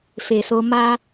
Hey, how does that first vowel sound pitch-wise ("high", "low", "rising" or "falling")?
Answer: low